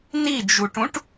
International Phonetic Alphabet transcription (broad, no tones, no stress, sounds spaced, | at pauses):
n i d͡ʒ u ʈ ũ ʈ